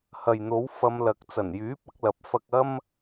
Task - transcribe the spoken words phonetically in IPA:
h ɐ˨ j n̪ o˨˥ w f ɐ˧ m l ɐ˨˥ k̚ t͡s ɐ˨˩ n j yː˨˥ p̚ ɐ˨˥ k̚ l ɐ˨˥ p̚ f ɐ˧ k̚ ɐ˥ m

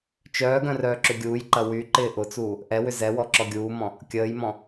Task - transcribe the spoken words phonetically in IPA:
t͡ʃ œː ɡ œ̃ r œː ǁ ʏ ɡʲ uː j ǃ ɐ w y ǃ ɪː ʔ ʊ t͡s uː | ʔ ɛ w ʏ z ɛ w ɔ ǁ ɔ ɡʲ uː m ɔ̃ | kʲ əː j m ɔ̃

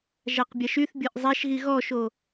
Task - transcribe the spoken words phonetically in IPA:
ʒ a q bʲ a ʃ y θ bʲ ɤ ʔ zˤ a ʃ ɣ i ɣ ɔ ʃ o

